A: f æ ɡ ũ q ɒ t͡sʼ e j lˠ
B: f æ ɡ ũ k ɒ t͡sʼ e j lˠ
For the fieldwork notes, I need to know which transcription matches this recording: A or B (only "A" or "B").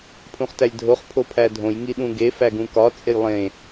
B